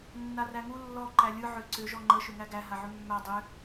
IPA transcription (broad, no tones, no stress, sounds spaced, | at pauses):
nː a r æ ŋ u lː ɔ ǃ æ lʲ ɯ ʕ ʏ ǀ ʏ ʒ ɔ ŋ͡ǃ ə ʃ ʏ ŋ æ ɡ æ ɦ a ʕ ʏ mː æ dˤ ʏ